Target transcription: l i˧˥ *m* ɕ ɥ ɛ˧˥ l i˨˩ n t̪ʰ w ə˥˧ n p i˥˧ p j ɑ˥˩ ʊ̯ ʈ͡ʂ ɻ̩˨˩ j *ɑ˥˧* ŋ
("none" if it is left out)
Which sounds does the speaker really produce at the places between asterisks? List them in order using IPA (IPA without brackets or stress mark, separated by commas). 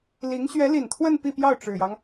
ŋ, ɑ˦